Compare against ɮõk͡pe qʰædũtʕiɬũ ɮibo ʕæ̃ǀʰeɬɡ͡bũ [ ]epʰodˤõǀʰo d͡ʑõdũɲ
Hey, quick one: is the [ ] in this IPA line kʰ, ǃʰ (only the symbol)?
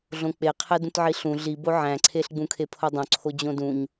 kʰ